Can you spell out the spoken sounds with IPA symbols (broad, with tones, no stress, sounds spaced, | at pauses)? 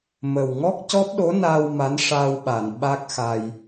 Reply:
m ə˨˩ w ŋ ɔ˦˥ k̚ c ɔ˦˥ p̚ ɗ o˧˥ n a˧ w m a˧˥ n ʂ a˧ w ɓ a˨˩˨ n ɓ a˦˥ k̚ x a˧ j